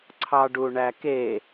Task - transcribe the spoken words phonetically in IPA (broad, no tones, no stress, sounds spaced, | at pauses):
ǀʰ ɑ ɖ u ɳ æ k e